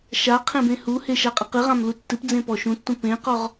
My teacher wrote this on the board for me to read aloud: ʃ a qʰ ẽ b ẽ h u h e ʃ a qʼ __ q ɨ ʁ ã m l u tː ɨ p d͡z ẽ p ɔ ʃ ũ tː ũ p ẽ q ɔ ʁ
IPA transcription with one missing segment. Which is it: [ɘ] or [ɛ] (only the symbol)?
ɘ